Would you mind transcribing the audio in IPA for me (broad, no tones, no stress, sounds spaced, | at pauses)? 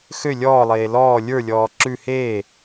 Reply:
x ø lʲ ɔː lˠ eː l ɔː lʲ ə˞ lʲ ɔː ǁ ʉ h eː